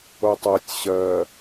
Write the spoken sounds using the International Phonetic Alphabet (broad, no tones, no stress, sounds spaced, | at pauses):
o tˤ ɜ tʲ ɕ ɜ